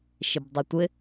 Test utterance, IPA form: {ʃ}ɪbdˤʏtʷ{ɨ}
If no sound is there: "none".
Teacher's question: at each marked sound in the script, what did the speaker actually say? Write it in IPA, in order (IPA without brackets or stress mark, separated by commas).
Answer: ʃ, ɪ